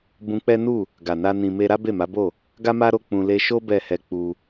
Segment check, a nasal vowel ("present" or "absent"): present